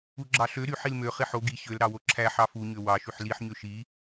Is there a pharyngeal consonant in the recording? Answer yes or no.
yes